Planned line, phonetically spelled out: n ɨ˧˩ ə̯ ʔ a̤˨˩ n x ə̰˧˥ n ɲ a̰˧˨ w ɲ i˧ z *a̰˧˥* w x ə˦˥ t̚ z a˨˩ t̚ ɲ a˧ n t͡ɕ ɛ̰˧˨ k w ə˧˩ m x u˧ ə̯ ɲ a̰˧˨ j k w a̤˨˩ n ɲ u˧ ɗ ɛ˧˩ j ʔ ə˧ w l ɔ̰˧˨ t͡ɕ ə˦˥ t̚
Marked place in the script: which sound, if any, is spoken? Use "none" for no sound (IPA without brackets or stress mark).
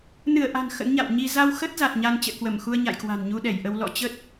a˧